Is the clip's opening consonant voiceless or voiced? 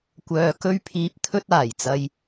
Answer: voiceless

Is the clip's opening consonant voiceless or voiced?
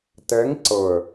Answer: voiceless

